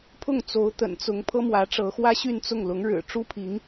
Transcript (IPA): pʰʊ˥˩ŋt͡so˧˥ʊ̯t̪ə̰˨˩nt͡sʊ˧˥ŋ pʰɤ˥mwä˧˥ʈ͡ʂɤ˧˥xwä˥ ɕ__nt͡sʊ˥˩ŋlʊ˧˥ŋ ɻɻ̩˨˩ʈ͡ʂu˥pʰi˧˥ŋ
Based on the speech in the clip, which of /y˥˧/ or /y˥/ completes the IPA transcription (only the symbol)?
y˥˧